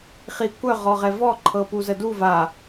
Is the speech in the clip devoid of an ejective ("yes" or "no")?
yes